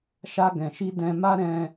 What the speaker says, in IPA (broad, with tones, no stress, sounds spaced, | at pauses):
ʃ a˧ ɡ ɛ̃˨ ʃ i˧ d ɛ̃˧ m a˦ ɾ ɛ̃˦